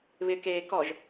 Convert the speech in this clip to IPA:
β ɪ k eː k ɔ ʒ

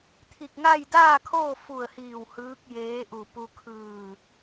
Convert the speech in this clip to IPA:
t̪ʰ i˧˩ k̚ ŋ a˥˨ j d aː˥˨ kʰ oː˥˨ f u˧˩ ə̯ h iː˧˩ w h ɯː˧˥ k̚ j eː˧˥ ʔ u˧˩ p u˧ kʰ ɯː˧˩

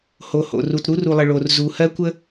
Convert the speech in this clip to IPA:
h o˨ h o̰˨ r u˨ t ɾ u˦ r u˨ lˠ ə˨ ɭ o˨ r z u˨ h ɜ˦ kʷ ə˦

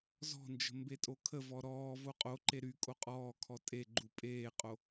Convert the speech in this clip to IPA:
z ɔ̤ n d͡ʒ ə̤ m b e tʼ o kʰ ə v ɔ ɾ ɔː v o qʼ o ǃ e ɾ y kʼ o qʼ ɔː kʰ ɔ tʼ e ɡ͡ǃ u pʼ eː qʼ o

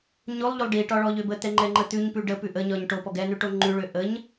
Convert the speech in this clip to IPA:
ɲ o lˠ ʎ o lˠ ɖ i ʈ ɒ ɭ ɔ ʎ ø b ə t̪ ɛ ŋ͡ǃ ɛ ŋ͡ǃ ə t̪ ʉ ɲ p ʉ ɖ ə p ʉ ʔ ə ɲ ɒ ɲ ʈ o p ɔ ɡ ɛ n ʉ ʈ o ŋ͡ǃ ʉ ɭ ø ʔ ə ɲ

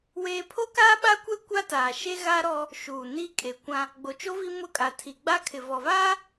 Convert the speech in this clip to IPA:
w eː˦ pʰ o˦ k aː˦ ɓ a˦ kʷ ɛ˦ kʷ a˦ t aː˨ ʃ e˦ ɣ a˦ ɾ ɔ˦ | ʃ uː˨ n iː˦ kʼ e˨ kʷ ã˦ | ɡ͡b o˨ t͡ʃ o˦ v i˦ m ʊ˦˨ kʼ a˨ tʰ i˨ ɡ͡b a˦ kʰ ɪ˨ v ɔ˨ v aː˦

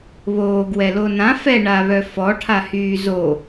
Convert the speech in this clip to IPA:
β oː ɡ w ɛ l o n ã f ɛ ɳ a β œ f ɔ ʈʰ a h yː z o

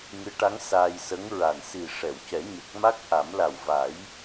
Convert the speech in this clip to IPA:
ŋ ɨ˧˥ ʈ a˧˥ ŋ s aː˧ j s ə˧˥ ŋ ɹ a˨˩ n s i˨˩ ʂ ɛ˨˩˨ w c ɛ˨˩˦ ɲ ə˨˩ k̚ m a˦˥ k̚ ʔ a˨˩˦ m l a˨˩ w v a˨˩˦ j

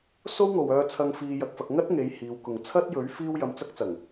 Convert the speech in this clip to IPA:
s o˥ w ŋ o˨ w œː˧ t͡sʰ ɐ˧ ŋ f iː˧ j ɐ˧ k̚ f ɐ˧ k̚ ŋ ɐ˥ t̚ ŋ e˨˧ j h iː˨˧ w k ʊ˨ ŋ t͡sʰ ɐ˥ t̚ j ɵ˨˥ ɥ f iː˥ w j ɐ˧ m t͡s ɐ˥ k̚ t͡s ɐ˨˩ ŋ

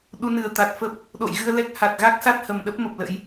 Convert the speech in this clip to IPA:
ɗ u˨˦ n ɨ˨˩ ə̯ t̪ a˨˩ t̚ f ə˦˥ p̚ | ɗ o̰˧˨ j ɣ ɨ˧ ə̯ l ɛ˦˥ k̚ h a˨˩ t̚ ɣ a˦˥ k̚ s a˦˥ t̚ h ə˨˩ m ɗ ə˦˥ p̚ m ə˨˩ p̚ l ə̰˧˥ j

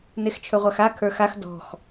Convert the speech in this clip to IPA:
n e x t͡ʃʰ ɵ ʁʷ a x a kʰ ə˞ x a x d ɔ̤ x

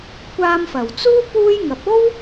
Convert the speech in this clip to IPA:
kʷ aː˧ m f ɐ˨˩ w t͡s uː˥ p uː˥ j ŋ ɐ˨˥ p̚ o˥ w

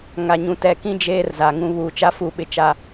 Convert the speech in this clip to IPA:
ŋ a˨ ɲ ũ˨ t ɛ˨ k ĩ˦ d͡ʒ eː˦ r z a˨ ŋ ũ˦ β u˨ t͡ʃ a˦ f u˦˨ ɓ ɪ˦ t͡ʃ a˦

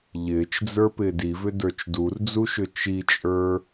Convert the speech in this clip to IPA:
ʎ ɪː t͡ʃ d͡z ə˞ p ɪː d i v ʏ d ə˞ t͡ʃ d u r d͡z u ʃ ʏ t͡ʃ i t͡ʃʼ ə˞

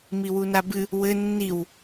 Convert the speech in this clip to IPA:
m i w u n a b ɨ | w ɘ nː i w

